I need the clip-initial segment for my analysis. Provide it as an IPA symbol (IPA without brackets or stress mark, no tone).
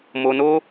m